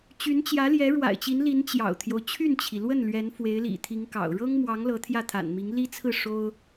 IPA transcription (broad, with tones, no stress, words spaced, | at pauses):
t͡ɕy˧˥nt͡ɕjä˧˥ljɛ˧˥ ɻwa̰˨˩ɪ̯t͡ɕi˧˥nli˧˥n t͡ɕjɑ̰˨˩ʊ̯t̪ʰjo˦ʊ̯ t͡ɕʰy˥˩nt͡ɕʰi˩lwə˥˩n lɥɛ˧˥nfwe˧˥ɪ̯lḭ˨˩t̪ʰi˧˥ŋ kɑ̰˨˩ʊ̯ ɻɤ˥ŋmwɑ˧˥ŋ lɤ˧˥t̪ʰjä˥˩t̪ʰa̰˨˩nmi˧˥ŋ li˥t͡sʰɹ̩˥˩ ʂo˥ʊ̯